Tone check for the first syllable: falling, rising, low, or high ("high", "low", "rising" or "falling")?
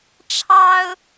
high